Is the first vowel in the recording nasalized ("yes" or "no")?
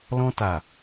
yes